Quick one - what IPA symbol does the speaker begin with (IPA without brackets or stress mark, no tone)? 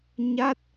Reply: ɲ